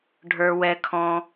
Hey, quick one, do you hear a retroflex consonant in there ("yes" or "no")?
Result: yes